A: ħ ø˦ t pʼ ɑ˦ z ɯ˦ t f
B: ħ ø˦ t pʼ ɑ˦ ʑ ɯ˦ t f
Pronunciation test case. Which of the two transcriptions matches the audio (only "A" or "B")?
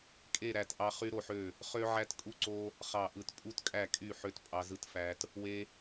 A